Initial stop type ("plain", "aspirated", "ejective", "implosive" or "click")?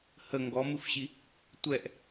plain